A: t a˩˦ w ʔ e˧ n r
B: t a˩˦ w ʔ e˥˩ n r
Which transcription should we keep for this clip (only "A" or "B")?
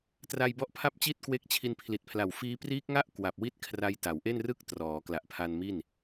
B